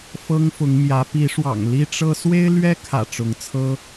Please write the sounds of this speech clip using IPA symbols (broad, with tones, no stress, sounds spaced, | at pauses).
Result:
f ɤ˦ ŋ f ʊ˨˦ ŋ m j ä˨˦ p i˨˦ ʂ w ɑ̰˨˩ ŋ l i˦ ʈ͡ʂ ɤ˦ s w e˦ ɪ̯ l ɥ ɛ˦ kʰ ä̰˨˩ ʈ͡ʂ ʊ˨˦ ŋ t͡sʰ ɤ˦